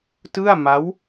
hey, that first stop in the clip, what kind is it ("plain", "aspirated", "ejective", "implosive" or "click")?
plain